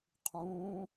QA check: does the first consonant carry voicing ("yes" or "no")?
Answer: no